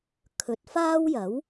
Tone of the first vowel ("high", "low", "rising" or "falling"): rising